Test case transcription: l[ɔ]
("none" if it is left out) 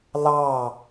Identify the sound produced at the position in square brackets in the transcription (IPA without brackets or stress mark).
ɑ